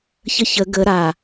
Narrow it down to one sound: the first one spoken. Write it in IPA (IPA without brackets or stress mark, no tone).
ç